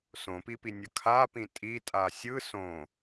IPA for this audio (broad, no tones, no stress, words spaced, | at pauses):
sõpipinʲʌ kʰapĩ tʼitʼa sʲɯ sõ